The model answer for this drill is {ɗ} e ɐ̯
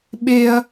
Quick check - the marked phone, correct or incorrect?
incorrect